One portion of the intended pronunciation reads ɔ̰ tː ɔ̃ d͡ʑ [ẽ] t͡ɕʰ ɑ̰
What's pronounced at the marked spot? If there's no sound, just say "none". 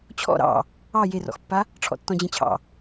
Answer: ẽ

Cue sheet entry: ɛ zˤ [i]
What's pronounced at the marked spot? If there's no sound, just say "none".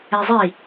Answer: i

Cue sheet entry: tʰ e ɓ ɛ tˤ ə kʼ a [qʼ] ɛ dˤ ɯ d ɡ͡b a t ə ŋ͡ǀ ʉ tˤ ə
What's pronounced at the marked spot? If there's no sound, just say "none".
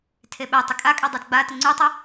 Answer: kʼ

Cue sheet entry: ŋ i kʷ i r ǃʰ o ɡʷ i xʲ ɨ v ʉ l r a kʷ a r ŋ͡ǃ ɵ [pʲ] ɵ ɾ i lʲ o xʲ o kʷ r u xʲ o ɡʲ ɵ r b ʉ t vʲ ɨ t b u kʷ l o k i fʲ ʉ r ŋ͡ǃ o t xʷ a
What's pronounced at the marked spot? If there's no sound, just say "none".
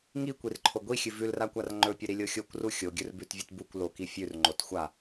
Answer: pʲ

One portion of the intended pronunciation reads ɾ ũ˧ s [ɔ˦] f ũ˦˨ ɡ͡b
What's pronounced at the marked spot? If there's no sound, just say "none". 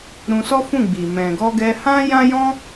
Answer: ɔ˦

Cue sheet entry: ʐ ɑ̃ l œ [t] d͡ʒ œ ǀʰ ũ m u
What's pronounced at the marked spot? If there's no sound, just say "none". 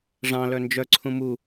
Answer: n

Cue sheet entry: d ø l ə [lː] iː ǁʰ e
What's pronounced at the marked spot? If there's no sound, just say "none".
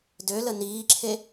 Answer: n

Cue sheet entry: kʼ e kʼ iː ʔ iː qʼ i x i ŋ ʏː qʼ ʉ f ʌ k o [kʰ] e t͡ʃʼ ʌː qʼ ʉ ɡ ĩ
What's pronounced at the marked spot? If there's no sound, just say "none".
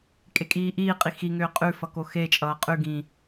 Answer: x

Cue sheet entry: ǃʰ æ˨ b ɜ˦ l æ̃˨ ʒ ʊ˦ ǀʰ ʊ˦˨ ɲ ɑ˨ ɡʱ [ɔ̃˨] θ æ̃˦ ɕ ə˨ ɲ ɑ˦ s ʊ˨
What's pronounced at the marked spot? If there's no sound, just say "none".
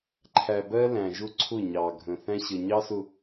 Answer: ə̃˨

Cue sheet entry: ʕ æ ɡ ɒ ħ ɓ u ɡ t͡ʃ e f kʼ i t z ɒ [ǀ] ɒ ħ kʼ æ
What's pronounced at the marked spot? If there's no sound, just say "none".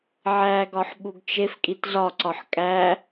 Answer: ǀ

